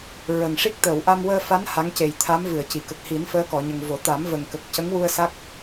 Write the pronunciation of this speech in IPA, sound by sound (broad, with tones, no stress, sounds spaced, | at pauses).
ɹ ə˨˩ ŋ ʂ i˦˥ k̚ t̪ əː˨˩˨ w ʔ a˧ m w əː˧ f a˧˥ n h a˧˥ ŋ c e˨˩ j t̪ʰ a˧˥ m v ɨ˨˩˨ ə̯ c i˨˩˨ k ə˨˩ k̚ h i˨˩˦ n f əː˧˥ k ɔ˨˩˨ ɲ ə˨˩ ŋ v o˨˩˦ t̪ a˨˩˦ m v ə˨˩ ŋ k ə˨˩ k̚ c ə˧˥ ŋ w u˧ ə̯ s a˦˥ k̚